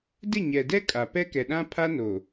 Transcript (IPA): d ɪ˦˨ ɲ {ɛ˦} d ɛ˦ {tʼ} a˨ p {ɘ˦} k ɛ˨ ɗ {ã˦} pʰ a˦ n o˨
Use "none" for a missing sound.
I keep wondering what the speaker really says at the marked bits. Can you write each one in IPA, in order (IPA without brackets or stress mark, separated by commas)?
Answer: ɛ˨, kʼ, ɛ˦, ã˦